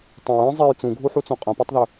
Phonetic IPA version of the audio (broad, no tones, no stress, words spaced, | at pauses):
tˤõɹ ĩ zˤej t͡sũɡʱuħut͡sõ qʼɐ̃patˤðɵ